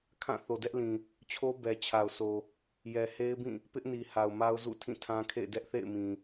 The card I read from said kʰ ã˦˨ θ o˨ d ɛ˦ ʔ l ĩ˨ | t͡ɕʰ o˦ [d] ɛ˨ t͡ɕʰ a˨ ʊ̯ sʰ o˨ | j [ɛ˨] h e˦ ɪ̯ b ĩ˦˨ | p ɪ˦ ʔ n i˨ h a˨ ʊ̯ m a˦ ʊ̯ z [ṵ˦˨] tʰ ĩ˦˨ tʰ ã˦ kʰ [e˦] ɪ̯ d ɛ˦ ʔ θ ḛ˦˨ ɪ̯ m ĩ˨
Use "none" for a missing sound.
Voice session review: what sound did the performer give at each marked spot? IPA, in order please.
b, ɛ˨, ṵ˦˨, ḛ˦˨

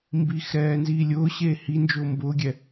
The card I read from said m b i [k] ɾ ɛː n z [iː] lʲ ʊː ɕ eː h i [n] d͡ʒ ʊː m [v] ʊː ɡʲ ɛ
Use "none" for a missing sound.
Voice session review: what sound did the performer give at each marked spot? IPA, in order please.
x, iː, n, b

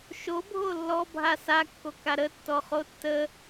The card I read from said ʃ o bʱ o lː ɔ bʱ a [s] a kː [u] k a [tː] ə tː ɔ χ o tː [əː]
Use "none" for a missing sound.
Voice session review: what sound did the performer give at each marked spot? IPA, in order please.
s, o, ɾ, ə

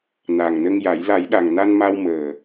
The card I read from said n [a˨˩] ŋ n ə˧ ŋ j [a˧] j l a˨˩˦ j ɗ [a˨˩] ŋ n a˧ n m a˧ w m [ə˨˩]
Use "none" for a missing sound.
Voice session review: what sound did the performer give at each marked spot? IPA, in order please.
a˨˩, a˨˩˦, a˨˩, əː˨˩

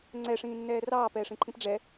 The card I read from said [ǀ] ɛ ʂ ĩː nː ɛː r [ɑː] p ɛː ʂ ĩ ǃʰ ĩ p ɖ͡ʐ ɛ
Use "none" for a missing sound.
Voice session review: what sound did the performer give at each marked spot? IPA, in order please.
ŋ͡ǀ, ɑː

